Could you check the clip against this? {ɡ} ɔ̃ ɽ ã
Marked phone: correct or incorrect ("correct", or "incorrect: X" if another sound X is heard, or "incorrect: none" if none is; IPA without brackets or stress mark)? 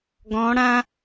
correct